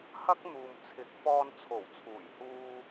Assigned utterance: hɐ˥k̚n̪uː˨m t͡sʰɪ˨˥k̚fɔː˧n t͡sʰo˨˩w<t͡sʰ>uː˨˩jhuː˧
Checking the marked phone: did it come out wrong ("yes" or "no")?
no